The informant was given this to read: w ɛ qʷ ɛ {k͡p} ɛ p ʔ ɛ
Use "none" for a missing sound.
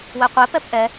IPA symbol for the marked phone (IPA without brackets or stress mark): p